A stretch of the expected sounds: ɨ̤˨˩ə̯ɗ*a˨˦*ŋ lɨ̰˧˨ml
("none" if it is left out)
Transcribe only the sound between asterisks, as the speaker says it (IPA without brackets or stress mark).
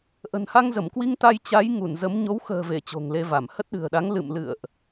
a˨˦